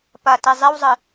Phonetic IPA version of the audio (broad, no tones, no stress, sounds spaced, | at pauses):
p ɐ t i zˤ i w zˤ ɨ